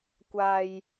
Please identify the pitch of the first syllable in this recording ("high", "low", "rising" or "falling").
low